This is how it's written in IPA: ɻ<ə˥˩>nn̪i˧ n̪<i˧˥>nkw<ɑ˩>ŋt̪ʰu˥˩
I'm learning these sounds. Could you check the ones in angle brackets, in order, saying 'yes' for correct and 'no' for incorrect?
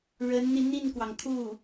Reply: no, no, yes

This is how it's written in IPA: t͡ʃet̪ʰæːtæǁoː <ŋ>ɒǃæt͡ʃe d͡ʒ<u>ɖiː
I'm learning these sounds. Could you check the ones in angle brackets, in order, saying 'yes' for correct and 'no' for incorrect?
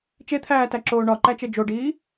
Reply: no, no

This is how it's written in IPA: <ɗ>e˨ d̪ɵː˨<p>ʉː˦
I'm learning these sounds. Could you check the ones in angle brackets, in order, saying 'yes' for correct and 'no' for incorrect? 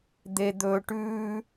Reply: no, no

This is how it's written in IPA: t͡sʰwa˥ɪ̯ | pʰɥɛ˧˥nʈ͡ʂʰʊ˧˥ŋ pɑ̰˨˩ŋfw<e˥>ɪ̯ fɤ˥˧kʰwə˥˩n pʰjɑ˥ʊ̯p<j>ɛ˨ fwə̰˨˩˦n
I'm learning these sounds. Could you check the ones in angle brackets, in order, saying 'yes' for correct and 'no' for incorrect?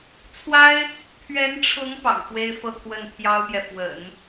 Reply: yes, yes

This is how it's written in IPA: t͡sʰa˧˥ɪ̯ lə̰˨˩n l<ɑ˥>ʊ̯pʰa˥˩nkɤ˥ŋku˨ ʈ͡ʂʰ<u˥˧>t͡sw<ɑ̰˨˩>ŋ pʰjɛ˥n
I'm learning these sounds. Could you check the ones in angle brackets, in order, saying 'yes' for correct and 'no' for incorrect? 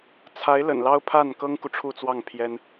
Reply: yes, yes, no

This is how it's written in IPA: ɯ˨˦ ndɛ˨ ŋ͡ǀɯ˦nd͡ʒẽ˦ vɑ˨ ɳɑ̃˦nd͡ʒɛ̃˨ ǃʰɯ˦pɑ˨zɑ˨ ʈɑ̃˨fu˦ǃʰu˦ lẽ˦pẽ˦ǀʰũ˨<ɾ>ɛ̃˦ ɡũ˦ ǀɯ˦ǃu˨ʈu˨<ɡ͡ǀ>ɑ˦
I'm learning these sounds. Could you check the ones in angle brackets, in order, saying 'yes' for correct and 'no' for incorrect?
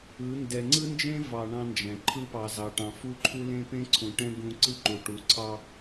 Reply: no, no

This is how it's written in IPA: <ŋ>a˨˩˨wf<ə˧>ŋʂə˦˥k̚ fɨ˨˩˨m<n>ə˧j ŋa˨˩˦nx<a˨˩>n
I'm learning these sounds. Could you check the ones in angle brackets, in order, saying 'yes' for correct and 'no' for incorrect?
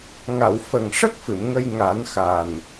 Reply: yes, no, no, yes

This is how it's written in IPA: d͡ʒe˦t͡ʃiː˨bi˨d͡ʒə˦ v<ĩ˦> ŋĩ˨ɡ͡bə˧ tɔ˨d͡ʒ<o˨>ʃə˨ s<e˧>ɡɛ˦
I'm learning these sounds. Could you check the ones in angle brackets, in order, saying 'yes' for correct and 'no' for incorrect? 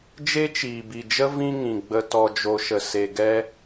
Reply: no, yes, no

